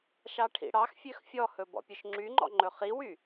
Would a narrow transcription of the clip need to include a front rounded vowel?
yes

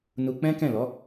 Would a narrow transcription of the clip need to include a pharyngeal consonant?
no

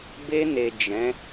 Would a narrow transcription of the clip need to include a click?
no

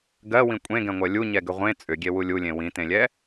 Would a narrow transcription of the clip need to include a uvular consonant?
yes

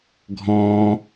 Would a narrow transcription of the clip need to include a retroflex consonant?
no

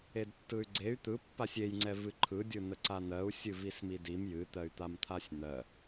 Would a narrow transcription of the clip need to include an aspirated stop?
yes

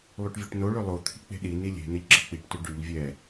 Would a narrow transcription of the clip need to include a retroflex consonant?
yes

